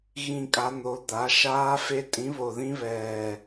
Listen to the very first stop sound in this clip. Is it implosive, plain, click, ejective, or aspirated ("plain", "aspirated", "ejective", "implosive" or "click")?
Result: ejective